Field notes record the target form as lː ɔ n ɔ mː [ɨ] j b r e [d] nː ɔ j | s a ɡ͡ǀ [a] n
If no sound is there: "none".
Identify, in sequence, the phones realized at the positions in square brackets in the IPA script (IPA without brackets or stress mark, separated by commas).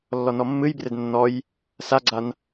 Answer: ɨ, d, a